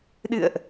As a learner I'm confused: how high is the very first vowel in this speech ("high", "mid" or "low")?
high